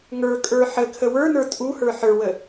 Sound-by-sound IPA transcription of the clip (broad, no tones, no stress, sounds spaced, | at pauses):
ŋ ə˞ kʼ ə˞ ħ ə kʰ ə w ə˞ n ə˞ tʼ u h ə˞ ħ ə˞ w ə